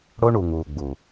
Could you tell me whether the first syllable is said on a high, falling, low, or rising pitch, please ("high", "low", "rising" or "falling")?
high